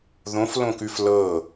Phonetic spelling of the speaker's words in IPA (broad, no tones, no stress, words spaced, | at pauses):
ðõflõkʉf lɤ